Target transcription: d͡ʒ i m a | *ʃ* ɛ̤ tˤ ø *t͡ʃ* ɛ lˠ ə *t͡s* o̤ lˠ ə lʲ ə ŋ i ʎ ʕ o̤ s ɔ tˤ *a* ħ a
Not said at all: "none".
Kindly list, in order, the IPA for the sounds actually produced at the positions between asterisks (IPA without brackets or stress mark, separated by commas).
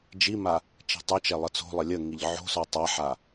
t͡ʃ, t͡ʃ, t͡s, a